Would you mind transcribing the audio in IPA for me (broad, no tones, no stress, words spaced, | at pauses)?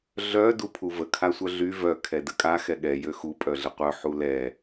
ɮœ dupʰuvə kʰasʷœɮy vœ kʰɛdəkʼa xɛɠɛ jøxu pʼœɮəqʷœ ħulɛ